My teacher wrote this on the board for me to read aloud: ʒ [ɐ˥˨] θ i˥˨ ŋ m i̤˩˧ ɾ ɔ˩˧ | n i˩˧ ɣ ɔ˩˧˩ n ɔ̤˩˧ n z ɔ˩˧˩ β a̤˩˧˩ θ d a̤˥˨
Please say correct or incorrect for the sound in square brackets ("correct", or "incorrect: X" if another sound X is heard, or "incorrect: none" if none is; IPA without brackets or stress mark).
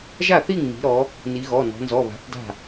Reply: incorrect: a˥˨